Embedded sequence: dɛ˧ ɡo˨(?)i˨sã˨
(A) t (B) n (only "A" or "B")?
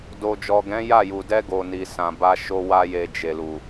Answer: B